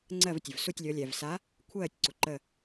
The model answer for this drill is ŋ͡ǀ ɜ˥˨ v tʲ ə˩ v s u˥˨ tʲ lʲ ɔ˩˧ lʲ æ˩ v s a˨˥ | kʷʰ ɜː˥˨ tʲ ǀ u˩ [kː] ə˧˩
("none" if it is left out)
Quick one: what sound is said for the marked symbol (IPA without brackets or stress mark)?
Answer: ǃ